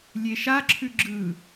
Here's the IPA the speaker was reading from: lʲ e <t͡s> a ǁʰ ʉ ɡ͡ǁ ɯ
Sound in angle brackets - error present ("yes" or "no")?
yes